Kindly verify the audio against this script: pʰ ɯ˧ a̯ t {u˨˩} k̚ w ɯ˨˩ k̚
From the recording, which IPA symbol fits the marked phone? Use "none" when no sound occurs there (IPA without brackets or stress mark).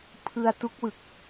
u˦˥